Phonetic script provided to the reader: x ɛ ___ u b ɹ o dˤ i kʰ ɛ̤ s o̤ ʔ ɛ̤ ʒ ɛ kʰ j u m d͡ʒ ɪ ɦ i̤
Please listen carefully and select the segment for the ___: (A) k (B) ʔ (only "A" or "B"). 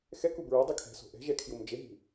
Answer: A